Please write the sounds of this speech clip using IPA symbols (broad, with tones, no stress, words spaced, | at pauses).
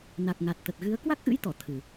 na˨˩k̚ŋa˨˩t̚t̪ə˨˩t̚ɣɨ˨˦ə̯ kwa˦˥k̚ʔɨ̰˧˥jt̪ɔ˧˩ t̪ʰɨ˨˩